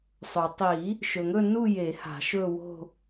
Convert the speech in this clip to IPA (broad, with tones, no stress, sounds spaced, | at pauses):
sˤ ɵ˩ tˤ i˨˩˦ | ʃ ɵ˩ ŋ ɵ˥˧ n u˥˧ j e˨˩˦ h a̤˨˩˦ ʃ ɵ˥˧ w o̤˥˧